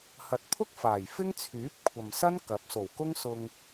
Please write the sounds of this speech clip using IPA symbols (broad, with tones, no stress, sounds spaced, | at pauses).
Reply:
h ɐ˨ t̚ pʰ ʊ˥ k̚ f aː˨˩ j f ɪ˥ ŋ t͡sʰ yː˨˥ p̚ kʷʰ ɐ˨ m s ɐ˥ n k ɐ˨˥ p̚ s o˨˩ w k ʊ˥ ŋ s ʊ˧ ŋ